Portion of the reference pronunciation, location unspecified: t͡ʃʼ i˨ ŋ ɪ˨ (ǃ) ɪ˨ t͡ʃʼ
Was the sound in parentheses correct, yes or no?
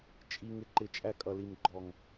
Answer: yes